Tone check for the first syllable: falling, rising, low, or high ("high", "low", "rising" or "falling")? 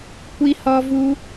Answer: high